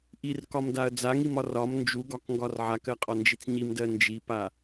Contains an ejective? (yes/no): yes